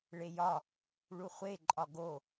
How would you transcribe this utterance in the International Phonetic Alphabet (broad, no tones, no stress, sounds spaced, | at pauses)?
ɭ e j ɒ | ɭ u χʷ e ǃʼ ɒ ɡ o